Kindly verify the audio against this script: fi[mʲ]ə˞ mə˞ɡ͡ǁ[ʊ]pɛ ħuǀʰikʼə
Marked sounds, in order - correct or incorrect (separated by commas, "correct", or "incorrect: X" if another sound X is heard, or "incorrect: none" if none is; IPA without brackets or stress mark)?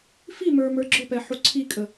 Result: incorrect: m, correct